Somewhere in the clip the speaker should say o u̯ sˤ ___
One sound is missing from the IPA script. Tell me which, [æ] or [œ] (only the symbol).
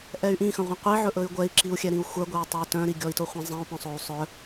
œ